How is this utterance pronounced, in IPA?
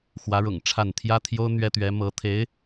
x w ä˧˥ ɻ ʊ̰˨˩ ŋ ʈ͡ʂʰ a˥˩ n t̪ʰ j ä˥ t̪ʰ j o˥ ʊ̯ n̪ ɥ ɛ˥ t̪ ɥ ɛ˧˥ m ɤ˧˥ t̪ʰ e˧˥ ɪ̯

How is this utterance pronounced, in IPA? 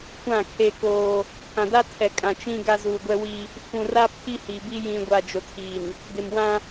kʷ ã˦˨ kʰ eː˦ k oː˦ | pʰ ã˨ d a˦ tʰ ɛ˨ kʼ ã˨ t͡ʃ ĩ˦ ɡ a˦ z u˨ ɡʷ ɛ˦ w i˦ | f ũ˨ r a˦ pʰ i˦ h i˨ b i˦ j ĩ˨ ɡʷ a˨ d͡ʒ o˨ tʰ iː˨ n | d ɪ˨ m w ã˦

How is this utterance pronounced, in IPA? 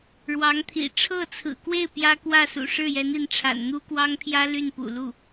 ɻ w ɑ˧˥ ŋ t̪ʰ ḭ˨˩ ʈ͡ʂʰ ɤ˥˩ t͡sʰ ɹ̩˨˩ k w e˥˩ ɪ̯ p j ä˥ k w ä˥˩ s ṵ˨˩ ʂ ɻ̩˥˩ j ɛ˧˥ n i˧˥ n ʈ͡ʂʰ a̰˨˩ n n̪ u˥ k w ɑ˥ ŋ pʰ j ä˥ l y˥˩ n p ṵ˨˩ l u˥˩

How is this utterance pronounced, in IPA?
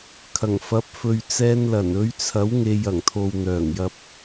kʰ ɐ˨˩ ŋ f ɐ˨˥ p̚ f ɵ˨ ɥ t͡s ɛː˧ n l ɐ˨˩ n ɵ˨˧ ɥ t͡sʰ ɐ˨˥ w ŋ e˨ j ɐ˨˩ ŋ t̪ʰ o˨ w n̪ œː˨˩ ŋ j ɐ˧ p̚

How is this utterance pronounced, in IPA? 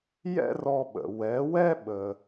j ɛ̰˥ r ɔ˧ ɓ ə̰˩ w ɛ˩˥ w ɛ˥ ɓ ə˩

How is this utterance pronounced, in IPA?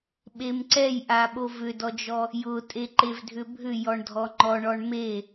ɓ e m ǀ ɛ j ʔ a ɓ o v ʏ d ɔ d͡ʒ ɔ | j ʊ tʼ e ǃ e v dʱ ʏ bʱ ʏ j ɔ ɳ dʱ ɔ ŋ͡ǃ ɔ ɳ ɔ ɳ m e

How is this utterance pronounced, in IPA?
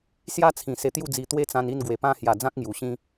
s j a˦ t͡sʰ ĩ˨˩ s e˧ t̪ j u˥˧ d͡z i˧ t̪ w e˦ t͡s ã˧ n i˥˧ n ɡ w e˨˩ p ã˧ h j a˨˩ d͡z ã˦ k̚ ŋ j u˨˩ ɕ ĩ˦

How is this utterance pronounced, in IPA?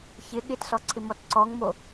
ç ɪ ɠ ɪ t s ɔ ǀʰ ɪ m ɔ t ǀ ɔ ŋ m o

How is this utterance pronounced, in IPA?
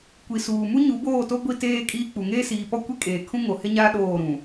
kʷ i˨ s uː˨ m u˦ ɲ u˨˦ b oː˦˨ t o˦ ɡʷ i˦ t eː˦ kʼ iː˦ k͡p u˨ ŋ eː˦ s iː˨ p ɔ˦ kʷ i˦ kʼ eː˨ kʰ ũ˦ ŋ o˨ h ɪ˦ ɲ aː˦ ɗ oː˦˨ ɾ ũ˨

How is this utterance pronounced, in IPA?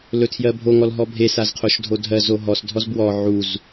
l ɵ tʰ j ɜ bʱ o ŋ ɔ l ɦ ɔ bʱ e s a z qʰ o ʃ dʱ o dʱ ɜ z o ɦ ɔ s dʱ ɔ z b w ɔ ʕ u z

